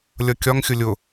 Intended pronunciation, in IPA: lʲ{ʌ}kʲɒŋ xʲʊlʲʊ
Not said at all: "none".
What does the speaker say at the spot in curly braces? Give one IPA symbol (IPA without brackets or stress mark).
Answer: ʌ